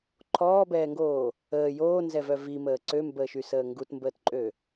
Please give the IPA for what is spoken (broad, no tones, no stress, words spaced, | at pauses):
ǃʰɔːbɛːŋɡoː | əː joːnzɛvœ viməː ǀømbəːʃysəː ŋɡutmbəːtǃʼø